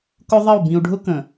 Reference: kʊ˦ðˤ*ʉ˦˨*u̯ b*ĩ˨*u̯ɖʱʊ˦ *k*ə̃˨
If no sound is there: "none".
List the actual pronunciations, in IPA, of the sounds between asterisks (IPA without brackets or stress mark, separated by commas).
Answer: ə˦˨, ĩ˨, k